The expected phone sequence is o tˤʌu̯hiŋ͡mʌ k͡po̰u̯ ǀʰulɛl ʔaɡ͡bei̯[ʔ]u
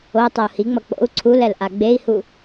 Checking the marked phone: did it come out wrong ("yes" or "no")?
yes